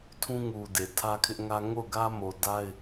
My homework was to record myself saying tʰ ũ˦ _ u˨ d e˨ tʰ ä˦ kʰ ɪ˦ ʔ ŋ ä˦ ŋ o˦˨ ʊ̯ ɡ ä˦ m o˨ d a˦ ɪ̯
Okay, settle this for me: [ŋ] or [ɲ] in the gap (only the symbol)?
ŋ